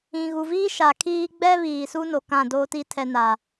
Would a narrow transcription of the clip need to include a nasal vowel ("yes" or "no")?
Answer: yes